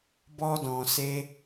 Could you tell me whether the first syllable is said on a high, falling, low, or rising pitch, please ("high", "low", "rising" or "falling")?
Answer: high